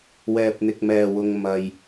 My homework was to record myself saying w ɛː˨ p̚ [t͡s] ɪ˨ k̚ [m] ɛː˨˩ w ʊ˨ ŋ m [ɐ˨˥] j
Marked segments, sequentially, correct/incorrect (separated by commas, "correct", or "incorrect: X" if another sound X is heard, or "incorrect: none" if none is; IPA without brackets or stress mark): incorrect: n̪, correct, incorrect: ɐ˨